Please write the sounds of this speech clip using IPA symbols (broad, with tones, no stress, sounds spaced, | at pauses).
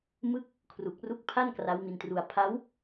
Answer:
m ɯ˦˥ k̚ | kʰ r u˨˩ k̚ r u˦˥ k̚ pʰ a˥˩ n k r a˦˥ w m i˧ n t r u˧ a̯ pʰ a˦˥ w